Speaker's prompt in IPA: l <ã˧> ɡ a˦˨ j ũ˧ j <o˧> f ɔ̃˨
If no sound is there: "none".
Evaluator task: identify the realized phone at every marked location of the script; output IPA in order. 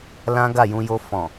ã˦, o˧

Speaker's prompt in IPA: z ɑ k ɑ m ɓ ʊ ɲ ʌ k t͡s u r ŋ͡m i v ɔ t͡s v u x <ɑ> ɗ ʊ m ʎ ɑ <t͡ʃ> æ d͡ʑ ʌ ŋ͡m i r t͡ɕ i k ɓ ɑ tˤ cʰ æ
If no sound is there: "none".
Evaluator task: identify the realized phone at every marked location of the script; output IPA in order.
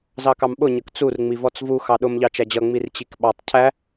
ɑ, t͡ʃ

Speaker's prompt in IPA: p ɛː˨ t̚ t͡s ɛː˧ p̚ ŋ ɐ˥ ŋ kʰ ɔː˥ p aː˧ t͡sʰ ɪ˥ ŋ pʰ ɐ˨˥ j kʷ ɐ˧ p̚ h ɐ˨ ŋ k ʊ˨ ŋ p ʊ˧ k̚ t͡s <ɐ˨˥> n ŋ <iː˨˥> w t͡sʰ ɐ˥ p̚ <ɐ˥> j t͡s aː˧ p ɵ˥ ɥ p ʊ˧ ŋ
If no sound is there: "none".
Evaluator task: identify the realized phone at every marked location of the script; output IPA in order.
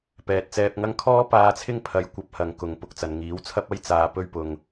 ɐ˨, iː˨˥, ɐ˥

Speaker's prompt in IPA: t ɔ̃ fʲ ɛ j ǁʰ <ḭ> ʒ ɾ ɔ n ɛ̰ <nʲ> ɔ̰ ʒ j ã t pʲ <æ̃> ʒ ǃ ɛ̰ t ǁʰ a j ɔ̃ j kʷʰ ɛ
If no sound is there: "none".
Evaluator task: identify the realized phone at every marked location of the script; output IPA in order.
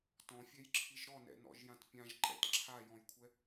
i, n, ã

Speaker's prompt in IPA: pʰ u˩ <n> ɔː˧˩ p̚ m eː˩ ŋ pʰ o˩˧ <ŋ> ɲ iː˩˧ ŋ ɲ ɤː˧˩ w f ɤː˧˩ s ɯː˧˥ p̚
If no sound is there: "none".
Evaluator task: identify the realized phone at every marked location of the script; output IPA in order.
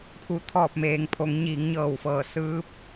t̪ʰ, ŋ

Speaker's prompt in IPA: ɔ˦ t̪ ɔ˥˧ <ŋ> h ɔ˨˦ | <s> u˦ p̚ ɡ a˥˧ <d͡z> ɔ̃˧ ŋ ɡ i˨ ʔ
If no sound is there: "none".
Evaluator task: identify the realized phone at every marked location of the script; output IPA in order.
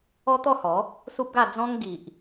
none, s, d͡z

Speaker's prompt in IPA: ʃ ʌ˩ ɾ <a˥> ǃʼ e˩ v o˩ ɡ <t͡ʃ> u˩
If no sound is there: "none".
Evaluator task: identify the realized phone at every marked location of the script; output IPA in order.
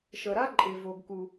a˥, k

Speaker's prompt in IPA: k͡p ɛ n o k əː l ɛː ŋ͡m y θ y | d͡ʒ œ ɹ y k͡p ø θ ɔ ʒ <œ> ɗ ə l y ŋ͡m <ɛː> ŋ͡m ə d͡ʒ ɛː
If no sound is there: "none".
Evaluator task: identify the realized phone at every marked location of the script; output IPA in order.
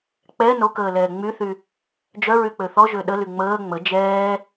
ø, əː

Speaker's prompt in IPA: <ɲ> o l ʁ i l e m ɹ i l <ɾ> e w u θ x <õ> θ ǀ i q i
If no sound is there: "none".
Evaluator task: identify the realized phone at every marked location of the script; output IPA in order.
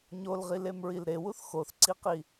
ɲ, ɾ, o

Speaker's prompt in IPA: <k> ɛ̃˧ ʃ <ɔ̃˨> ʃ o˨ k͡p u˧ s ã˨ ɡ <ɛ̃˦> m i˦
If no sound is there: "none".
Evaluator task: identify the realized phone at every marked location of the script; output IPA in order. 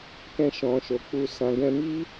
k, ɔ̃˨, ɛ̃˧

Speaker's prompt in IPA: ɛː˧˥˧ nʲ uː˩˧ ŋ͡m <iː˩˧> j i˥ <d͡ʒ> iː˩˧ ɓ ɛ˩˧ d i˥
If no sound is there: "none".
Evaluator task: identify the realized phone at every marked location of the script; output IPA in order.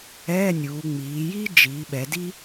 iː˩˧, d͡ʒ

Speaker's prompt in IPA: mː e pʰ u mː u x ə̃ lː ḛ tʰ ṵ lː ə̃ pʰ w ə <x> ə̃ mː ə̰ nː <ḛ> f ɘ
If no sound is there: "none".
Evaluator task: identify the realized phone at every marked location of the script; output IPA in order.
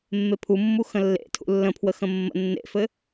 x, ḛ

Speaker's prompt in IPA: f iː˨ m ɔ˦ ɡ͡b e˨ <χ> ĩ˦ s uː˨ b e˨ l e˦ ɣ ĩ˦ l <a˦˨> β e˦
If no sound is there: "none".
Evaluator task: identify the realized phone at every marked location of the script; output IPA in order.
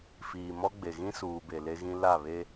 ɣ, a˦˨

